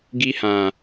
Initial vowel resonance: oral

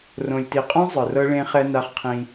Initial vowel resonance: nasal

